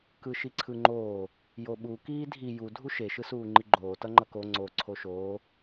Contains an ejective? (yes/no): no